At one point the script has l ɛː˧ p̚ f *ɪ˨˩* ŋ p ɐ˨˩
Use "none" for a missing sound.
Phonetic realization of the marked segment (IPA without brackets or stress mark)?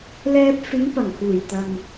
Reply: ɪ˨˧